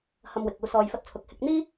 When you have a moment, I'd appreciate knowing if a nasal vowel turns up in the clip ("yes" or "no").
no